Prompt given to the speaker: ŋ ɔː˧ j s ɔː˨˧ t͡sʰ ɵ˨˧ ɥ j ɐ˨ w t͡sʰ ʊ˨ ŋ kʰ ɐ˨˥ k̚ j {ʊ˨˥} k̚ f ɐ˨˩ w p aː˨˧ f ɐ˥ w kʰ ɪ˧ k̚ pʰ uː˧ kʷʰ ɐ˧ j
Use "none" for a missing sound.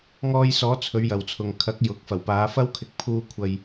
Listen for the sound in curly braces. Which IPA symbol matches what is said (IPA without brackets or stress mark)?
ʊ˨˥